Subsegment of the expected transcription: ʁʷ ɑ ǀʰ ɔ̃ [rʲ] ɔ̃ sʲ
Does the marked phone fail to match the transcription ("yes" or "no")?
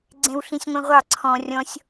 no